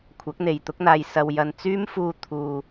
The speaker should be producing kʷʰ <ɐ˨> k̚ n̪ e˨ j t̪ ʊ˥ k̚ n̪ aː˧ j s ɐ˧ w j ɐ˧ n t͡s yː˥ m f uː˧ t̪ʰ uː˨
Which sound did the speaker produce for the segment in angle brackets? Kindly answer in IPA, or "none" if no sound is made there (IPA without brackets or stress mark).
ɐ˨˥